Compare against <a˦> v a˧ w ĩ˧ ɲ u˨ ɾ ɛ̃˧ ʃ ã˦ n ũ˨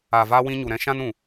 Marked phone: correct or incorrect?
incorrect